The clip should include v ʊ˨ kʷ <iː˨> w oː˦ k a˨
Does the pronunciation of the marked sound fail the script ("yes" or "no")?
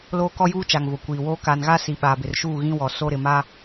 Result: no